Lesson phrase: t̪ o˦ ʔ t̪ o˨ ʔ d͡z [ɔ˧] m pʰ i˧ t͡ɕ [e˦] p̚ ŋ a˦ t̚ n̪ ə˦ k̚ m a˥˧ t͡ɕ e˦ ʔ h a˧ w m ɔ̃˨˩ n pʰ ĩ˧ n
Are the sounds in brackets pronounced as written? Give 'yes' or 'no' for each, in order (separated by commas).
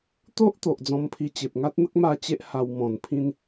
no, no